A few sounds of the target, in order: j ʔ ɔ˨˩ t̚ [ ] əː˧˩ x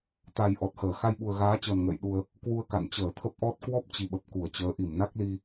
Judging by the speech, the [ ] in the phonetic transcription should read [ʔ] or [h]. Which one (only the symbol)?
h